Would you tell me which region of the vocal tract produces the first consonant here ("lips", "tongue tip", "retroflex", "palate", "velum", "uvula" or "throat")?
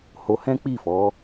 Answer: throat